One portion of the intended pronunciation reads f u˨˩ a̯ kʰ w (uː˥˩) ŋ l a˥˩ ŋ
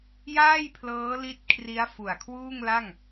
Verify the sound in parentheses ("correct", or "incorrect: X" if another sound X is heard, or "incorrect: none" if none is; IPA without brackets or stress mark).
correct